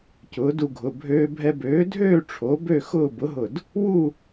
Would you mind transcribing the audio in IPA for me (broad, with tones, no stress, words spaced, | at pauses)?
cʊː˩˥du˧ɡʱʊ˩˧˩ bʱøː˧bʱɛ˧bøː˩˥dʱøː˥˨ ʈ͡ʂʰo˩˥ bø˥˨xʊː˥˨ bʊ˩˥ɦʊ˧˩d | wu˥˨